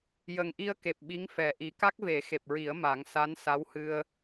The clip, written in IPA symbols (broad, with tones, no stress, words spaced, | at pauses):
jə˨˩ŋʔi˧ə̯ke˨˩p̚ ɓi˧˥ŋfɛ˨˩ʔi˨˩˦ ka˦˥k̚ve˨˩˦xe˨˩p̚ɹi˨˩˦ə̯ ma˨˩˦ŋsa˧˥nsa˧˥whɨ˧ə̯